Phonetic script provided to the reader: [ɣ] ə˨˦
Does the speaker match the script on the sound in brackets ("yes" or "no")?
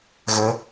yes